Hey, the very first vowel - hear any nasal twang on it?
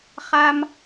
no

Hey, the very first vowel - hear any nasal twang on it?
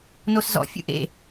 no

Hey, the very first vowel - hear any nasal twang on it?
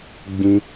yes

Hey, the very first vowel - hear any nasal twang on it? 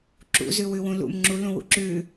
no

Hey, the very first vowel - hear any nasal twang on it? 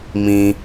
yes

